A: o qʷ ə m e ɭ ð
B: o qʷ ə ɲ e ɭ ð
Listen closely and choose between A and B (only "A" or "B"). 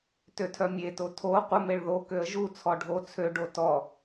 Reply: A